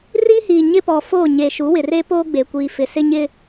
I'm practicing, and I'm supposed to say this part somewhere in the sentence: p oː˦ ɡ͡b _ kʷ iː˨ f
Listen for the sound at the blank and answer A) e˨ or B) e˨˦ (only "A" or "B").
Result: A